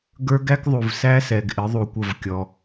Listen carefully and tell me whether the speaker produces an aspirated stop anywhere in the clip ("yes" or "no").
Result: no